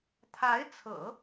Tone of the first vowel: rising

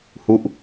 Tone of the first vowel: falling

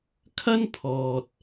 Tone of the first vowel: high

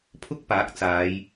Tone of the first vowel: high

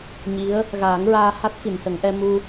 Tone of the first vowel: rising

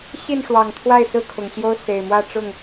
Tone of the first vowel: falling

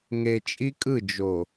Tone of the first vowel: low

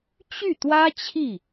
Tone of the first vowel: falling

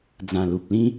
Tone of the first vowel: low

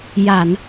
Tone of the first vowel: low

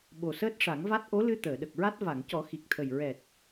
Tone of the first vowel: low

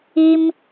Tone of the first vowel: high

